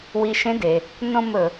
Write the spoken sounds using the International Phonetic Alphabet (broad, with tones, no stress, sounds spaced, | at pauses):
w i˧ ʃ ẽ˧˥ d e˩ | n õ˥˧ m ɵ˩